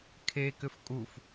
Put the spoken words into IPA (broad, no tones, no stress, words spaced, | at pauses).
kʰe kʏfkʼuf